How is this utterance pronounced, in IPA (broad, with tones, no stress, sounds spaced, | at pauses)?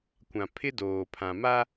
kʷ ã˨ pʰ ɪ˦ d oː˨ pʰ ã˨ m a˦